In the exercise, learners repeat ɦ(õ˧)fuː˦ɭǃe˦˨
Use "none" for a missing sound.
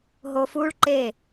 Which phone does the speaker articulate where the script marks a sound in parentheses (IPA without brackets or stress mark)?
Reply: o˧